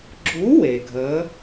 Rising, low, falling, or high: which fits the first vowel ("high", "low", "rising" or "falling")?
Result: rising